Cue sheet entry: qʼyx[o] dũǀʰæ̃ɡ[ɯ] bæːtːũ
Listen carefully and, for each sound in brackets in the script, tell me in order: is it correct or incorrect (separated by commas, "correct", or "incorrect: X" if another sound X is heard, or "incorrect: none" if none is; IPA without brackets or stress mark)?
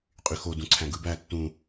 correct, correct